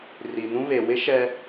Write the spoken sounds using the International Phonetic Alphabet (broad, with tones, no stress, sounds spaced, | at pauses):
r i˨ n ũ˦ β e˨ w ɪ˦ ʃ ɛ˦